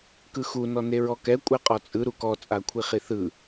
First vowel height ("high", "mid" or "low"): high